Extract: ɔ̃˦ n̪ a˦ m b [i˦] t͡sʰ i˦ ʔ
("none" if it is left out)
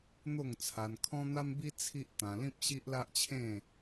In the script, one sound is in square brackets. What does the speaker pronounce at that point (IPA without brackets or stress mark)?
i˦